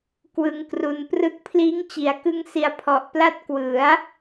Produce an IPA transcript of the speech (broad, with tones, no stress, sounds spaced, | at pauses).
k w ɯ˧ ŋ k r u˧ n p r ɯ˥˩ k̚ pʰ l iː˦˥ ŋ t͡ɕ i˩˦ a̯ k ɯ˦˥ ŋ s i˧ a̯ pʰ ɔ˨˩ ʔ p l a˥˩ t̚ k w ɯ˩˦ a̯